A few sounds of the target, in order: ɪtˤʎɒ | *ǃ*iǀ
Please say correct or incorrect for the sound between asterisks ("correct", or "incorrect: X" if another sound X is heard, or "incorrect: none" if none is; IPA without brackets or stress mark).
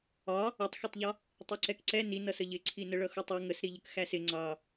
incorrect: tˤ